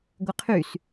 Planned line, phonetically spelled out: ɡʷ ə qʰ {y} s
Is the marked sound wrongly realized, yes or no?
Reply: no